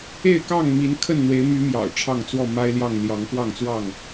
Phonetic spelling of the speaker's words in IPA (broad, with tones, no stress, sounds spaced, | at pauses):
e˥˨ ɪ̯ k ɑ˥˨ ŋ m i˨˦ n kʰ ə˥˨ n n̪ w e˨˦ ɪ̯ m y˨˦ m j ɑ̰˨˩ ʊ̯ ʈ͡ʂʰ ɑ˥˨ ŋ t͡s w ɔ˥˨ m a˦ ɪ̯ l j ɑ˥˨ ŋ l j ɑ˨˦ ŋ k w ɑ˥˨ ŋ t͡s w ɑ˥˨ ŋ